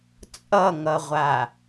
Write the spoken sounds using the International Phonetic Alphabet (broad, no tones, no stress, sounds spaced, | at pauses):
t͡sʼ ʌ ŋ ʌ ʁʷ a